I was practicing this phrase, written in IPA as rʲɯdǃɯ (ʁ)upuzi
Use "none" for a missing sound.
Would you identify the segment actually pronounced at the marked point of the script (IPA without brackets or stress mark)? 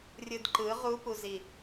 ʁ